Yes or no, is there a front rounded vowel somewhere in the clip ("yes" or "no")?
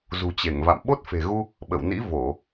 no